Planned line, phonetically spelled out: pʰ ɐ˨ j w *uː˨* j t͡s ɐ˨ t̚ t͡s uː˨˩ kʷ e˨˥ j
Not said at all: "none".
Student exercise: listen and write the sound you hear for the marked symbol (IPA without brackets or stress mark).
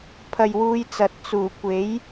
uː˨˧